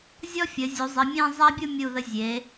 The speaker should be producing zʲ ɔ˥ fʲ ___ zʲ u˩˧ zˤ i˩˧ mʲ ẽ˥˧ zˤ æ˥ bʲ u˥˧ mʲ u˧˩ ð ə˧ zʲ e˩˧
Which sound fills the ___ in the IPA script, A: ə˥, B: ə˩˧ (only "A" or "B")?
B